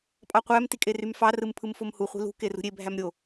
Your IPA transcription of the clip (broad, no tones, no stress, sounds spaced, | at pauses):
pʼ ɑ qʷ æ m t i kʼ e r y m f ɑ r ɯ m pʰ ɯ m f o m h u χʷ i̤ l ṳ k e r ṳ ɾʲ e bʱ æ m ɾʲ o